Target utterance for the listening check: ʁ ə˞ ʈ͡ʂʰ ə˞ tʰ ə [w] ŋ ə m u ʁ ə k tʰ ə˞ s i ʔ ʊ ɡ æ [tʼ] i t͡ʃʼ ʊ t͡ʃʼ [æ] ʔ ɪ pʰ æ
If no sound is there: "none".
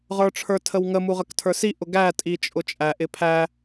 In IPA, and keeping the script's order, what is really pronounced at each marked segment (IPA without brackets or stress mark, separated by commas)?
w, tʼ, æ